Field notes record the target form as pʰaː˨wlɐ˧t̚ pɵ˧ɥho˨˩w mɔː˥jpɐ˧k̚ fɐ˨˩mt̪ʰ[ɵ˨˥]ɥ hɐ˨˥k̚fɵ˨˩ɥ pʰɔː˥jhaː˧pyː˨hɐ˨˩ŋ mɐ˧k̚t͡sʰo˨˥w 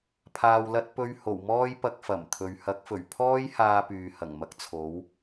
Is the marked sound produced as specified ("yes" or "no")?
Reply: no